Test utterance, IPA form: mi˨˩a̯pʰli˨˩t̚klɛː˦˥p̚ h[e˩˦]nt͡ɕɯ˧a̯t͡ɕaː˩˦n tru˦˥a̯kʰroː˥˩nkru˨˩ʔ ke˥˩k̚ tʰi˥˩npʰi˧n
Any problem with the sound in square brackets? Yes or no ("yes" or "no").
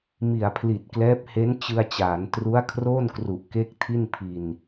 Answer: yes